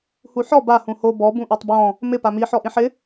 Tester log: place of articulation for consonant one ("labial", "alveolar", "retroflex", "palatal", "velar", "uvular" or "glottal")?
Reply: glottal